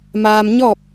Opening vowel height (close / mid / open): open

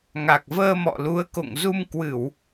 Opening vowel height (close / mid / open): open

